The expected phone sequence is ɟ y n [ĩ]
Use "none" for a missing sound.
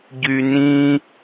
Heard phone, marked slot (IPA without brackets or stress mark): ĩ